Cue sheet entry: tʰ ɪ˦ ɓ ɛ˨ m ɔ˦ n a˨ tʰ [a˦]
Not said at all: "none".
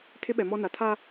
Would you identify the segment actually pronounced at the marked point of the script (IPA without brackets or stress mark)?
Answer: a˦